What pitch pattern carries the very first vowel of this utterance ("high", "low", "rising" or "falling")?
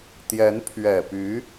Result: rising